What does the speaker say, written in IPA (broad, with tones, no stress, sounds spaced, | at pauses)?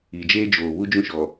i˨ d͡ʒ eː˦ d͡ʒ oː˨ β u˦ d͡ʒ ũ˦ ʃ ɔ˨